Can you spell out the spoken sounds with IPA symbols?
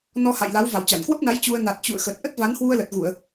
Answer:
n ɔ˧ h a̰˧˨ j l a˨˦ w v a˧˩ w t͡ɕ a˧˩ n k w ə˦˥ p̚ n a˨˦ j t͡ɕ u˧ ə̯ n a˨˩ t̚ t͡ɕ ṵ˧˨ ə̯ x ə˨˩ t̚ ʔ ə˦˥ t̚ v a˨˦ n h w u˧ ə̯ l ə˨˩ t̚ ɣ u˧˩˨ ə̯

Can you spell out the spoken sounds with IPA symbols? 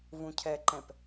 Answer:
v ũ cʰ ɛ ǃ ɛ̃ p

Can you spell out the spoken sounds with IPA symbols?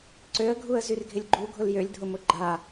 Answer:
ǀ ø ə̯ ɡʱ u ə̯ z y r ɡʱ ɪ lʲ ɡ͡ǃ u ɡʱ ʊ l j ø lʲ dʱ ʊ m ʊ ɡ͡ǃ a

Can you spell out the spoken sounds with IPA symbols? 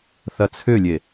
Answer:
θ ɐ t͡sʰ ʏ lʲ e

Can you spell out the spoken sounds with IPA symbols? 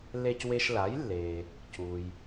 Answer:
l e˧ c w e˧ ʃ l a˩˥ j lː e˩ | c u˩ j

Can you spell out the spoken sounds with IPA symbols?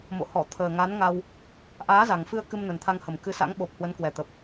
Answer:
m o̰˧˨ h ɔ˧˩ t̪ʰ əː˨˩ ŋ a˨˦ n ŋ a˧ w | ʔ aː˨˦ z a˨˩ ŋ f ɨ˧ ə̯ k ɨ˧ m n ə˨˩ n t̪ʰ a˧ ŋ h ə˨˩ m k ɨ˨˦ s a̰˧˥ ŋ ɓ o˨˩ p̚ h w ə˨˦ n k w ɛ˨˩ t̪ ə˨˩ p̚

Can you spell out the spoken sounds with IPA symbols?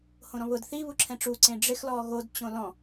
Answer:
h õ ɾ ɔ̃ β ʊ d θ i β u ǁʰ ɛ̃ ʈ͡ʂ u ǀ ẽ ɖ͡ʐ ɪ x l ɔ ɣ o d t͡ɕ õ l ɔ̃

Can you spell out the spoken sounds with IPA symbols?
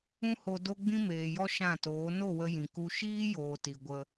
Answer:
ũ˦ h o˧ d o˦ ɡ͡b ĩ˦ m eː˨ j ɔ˦ ʃ ã˦˨ t oː˨˦ n o˦˨ w ə˧ j ĩ˨ k u˦ ʃ iː˦ j oː˨ t i˨ ɡʷ ə˧

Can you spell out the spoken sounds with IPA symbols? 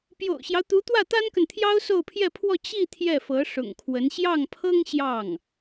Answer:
p j o̰˨˩ ʊ̯ ɕ j ɑ˦ ʊ̯ t̪ u˧˥ t̪ w ä˥˩ t̪ a˥ n k ə˨ n t̪ʰ j ɑ˥ ʊ̯ s o˥˧ ʊ̯ pʰ j ɛ˥˧ pʰ w ɔ˥˧ t͡ɕ i˥˧ t̪ʰ j ɛ˥˩ f ɤ˧˥ ʂ ʊ̰˨˩ ŋ kʰ w ə˧˥ n ɕ j ɑ˥˩ ŋ pʰ ɤ˥ ŋ ɕ j ɑ˥˩ ŋ

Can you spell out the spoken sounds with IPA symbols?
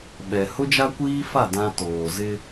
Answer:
ɓ ɛ˨ h ʊ˦ d͡ʒ a˦ kʷ iː˦ f a˦˨ d ã˦ t oː˨ z ɪ˦

